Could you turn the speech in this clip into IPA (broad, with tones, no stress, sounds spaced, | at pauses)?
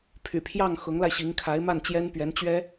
pʰ y̰˨˩ pʰ j ɑ˥˩ ŋ x ʊ˧˥ ŋ l a˧ ɪ̯ ɕ i˧˥ ŋ kʰ a˧˥ ɪ̯ m a˥˩ n t͡ɕ j ɛ˥ n p ɥ ɛ˧˥ n t͡ɕ ɥ ɛ˥